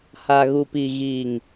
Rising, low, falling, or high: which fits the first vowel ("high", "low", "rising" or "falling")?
low